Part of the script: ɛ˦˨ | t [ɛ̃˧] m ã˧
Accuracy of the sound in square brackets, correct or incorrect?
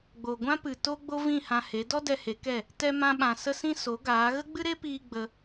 incorrect: ɛ˧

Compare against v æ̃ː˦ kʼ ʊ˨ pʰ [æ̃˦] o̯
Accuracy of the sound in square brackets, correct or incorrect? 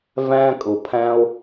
correct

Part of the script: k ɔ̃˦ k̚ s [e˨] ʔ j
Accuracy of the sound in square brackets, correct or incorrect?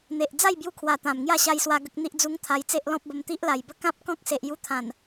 correct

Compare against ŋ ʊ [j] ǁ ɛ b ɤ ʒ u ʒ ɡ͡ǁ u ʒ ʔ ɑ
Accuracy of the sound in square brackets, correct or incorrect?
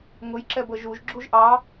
correct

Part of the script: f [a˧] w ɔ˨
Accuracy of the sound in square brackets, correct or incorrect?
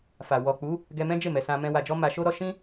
incorrect: a˨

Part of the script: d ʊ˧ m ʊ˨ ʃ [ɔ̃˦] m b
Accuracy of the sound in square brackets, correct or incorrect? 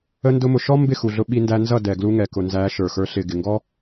incorrect: ɔ˦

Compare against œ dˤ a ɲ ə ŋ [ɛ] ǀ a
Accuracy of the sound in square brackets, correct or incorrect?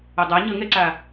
correct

